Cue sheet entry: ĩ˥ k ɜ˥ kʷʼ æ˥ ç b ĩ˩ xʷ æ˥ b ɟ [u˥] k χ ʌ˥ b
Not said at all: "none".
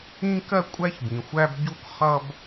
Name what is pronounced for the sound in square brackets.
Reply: u˥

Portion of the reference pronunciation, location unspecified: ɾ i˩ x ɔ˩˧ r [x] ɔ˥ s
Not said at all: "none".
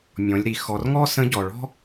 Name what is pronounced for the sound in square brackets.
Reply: ŋ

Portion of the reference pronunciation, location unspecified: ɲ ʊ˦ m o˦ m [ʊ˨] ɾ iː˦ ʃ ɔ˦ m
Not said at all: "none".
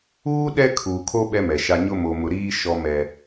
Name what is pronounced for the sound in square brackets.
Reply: ʊ˦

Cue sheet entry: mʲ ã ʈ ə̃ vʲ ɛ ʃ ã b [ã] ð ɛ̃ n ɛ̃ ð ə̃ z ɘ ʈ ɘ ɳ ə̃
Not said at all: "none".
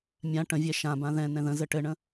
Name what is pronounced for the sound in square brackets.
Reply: ã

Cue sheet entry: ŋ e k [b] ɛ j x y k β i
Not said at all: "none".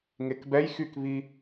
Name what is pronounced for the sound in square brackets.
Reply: b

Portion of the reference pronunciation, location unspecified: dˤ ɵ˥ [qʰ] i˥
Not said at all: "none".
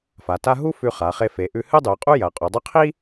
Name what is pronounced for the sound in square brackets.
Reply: qʰ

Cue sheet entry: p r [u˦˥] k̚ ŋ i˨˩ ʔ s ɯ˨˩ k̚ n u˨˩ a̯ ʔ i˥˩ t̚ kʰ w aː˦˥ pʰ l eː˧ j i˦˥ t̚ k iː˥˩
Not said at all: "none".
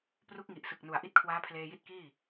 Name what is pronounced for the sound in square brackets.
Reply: u˦˥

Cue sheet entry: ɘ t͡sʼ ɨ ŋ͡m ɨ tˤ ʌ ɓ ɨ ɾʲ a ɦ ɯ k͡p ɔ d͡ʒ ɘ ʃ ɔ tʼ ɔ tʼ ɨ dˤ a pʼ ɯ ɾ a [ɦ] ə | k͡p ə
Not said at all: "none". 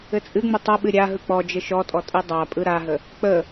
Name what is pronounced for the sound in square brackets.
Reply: ɦ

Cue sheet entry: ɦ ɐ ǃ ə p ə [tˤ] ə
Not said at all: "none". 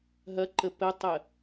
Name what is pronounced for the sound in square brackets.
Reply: tˤ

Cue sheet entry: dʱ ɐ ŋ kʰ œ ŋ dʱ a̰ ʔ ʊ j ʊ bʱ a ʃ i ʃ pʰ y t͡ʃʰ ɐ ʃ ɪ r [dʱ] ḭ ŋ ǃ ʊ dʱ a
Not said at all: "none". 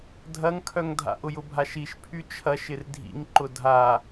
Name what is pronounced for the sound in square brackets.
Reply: dʱ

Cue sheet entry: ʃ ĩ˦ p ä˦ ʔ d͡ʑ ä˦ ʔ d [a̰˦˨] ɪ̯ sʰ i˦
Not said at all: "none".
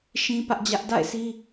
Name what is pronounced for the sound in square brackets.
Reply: a̰˦˨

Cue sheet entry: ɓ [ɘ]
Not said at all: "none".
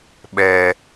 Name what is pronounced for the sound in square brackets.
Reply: ɛ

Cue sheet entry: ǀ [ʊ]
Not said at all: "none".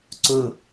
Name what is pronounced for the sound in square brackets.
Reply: ʊ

